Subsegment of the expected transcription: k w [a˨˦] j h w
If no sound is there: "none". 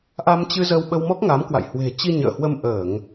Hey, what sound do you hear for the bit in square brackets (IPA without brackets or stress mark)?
a̰˧˨